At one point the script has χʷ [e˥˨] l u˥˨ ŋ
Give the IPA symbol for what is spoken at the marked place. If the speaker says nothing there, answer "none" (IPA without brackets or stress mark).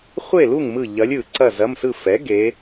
e˥˨